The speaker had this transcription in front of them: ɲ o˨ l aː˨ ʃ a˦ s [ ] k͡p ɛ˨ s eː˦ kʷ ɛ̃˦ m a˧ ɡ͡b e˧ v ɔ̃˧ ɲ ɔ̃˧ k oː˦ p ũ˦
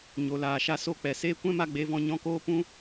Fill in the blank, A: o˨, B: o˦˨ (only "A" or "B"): B